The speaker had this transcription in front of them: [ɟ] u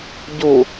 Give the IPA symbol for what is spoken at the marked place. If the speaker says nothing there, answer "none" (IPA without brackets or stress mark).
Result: ɟ